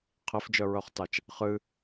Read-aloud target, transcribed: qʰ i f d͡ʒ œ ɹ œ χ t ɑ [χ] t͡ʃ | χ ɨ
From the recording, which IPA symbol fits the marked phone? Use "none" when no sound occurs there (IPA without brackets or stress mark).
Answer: none